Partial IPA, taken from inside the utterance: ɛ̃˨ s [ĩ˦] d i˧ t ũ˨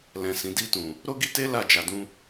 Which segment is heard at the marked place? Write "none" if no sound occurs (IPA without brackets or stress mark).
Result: ĩ˨